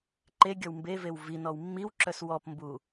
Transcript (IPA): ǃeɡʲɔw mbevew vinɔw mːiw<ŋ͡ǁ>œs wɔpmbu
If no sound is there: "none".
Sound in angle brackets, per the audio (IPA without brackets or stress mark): ǁ